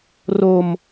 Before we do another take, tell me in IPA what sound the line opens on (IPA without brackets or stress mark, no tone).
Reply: r